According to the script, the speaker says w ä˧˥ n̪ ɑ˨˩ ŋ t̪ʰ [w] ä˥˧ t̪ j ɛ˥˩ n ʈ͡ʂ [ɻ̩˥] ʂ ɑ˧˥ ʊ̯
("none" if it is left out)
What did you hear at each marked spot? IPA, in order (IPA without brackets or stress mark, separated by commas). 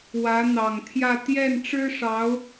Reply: j, ɻ̩˥